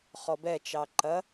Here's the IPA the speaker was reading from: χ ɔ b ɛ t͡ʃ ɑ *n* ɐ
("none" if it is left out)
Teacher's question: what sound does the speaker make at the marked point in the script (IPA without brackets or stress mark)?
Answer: ǃ